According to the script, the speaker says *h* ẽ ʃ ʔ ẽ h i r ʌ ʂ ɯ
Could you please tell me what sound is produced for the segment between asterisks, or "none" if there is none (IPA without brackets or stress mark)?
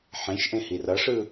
ħ